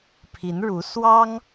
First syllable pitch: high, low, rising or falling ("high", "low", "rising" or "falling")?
rising